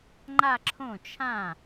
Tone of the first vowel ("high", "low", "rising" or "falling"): falling